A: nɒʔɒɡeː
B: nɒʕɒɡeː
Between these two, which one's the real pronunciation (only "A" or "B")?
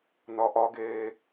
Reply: A